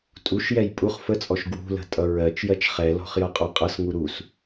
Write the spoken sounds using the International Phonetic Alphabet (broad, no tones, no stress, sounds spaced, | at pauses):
tʼ u ʃ j ɛ j pʼ u χ f ə t͡sʼ ɔ ʃ ɡ w ṳ l ə̤ tʼ ʌ ɹ ɜ t͡ʃ j ɜ t͡ʃ χ ɛ l ɔ̤ χ j ʌ qʼ ɔ qʼ ʌ s ŋ u ɾ u s